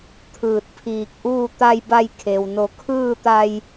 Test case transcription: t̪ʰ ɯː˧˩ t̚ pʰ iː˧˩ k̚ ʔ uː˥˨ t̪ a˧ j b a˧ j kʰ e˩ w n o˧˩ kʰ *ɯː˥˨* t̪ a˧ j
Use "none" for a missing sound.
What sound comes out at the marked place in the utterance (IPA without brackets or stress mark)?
ɯː˥˨